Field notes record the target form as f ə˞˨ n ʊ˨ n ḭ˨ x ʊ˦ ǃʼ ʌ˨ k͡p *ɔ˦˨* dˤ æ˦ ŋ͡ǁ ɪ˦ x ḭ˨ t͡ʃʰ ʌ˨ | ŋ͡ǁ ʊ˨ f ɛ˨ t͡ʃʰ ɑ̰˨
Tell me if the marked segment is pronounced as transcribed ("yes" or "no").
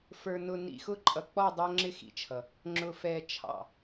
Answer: yes